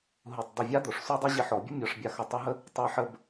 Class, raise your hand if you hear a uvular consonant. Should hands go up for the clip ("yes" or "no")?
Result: no